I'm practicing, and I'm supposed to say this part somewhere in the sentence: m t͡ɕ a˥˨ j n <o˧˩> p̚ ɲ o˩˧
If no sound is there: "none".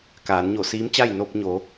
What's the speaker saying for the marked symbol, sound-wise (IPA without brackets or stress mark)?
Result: o˧